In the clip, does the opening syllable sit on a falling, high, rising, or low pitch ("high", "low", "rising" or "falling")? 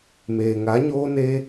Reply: low